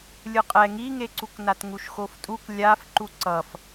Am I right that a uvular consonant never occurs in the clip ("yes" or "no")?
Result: no